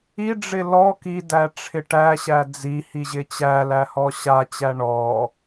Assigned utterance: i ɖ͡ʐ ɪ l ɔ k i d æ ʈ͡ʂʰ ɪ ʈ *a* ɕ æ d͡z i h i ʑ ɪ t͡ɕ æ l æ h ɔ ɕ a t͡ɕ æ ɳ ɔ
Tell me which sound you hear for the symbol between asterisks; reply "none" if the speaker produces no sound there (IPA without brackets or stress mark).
æ